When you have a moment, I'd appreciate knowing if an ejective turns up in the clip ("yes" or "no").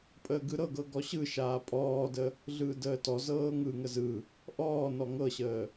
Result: yes